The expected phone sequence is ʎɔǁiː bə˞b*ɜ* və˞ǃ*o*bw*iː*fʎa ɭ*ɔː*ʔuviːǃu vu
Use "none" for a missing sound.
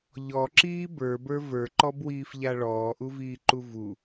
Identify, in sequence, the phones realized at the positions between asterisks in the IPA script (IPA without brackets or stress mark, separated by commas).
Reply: ə˞, ɔ, iː, ɔː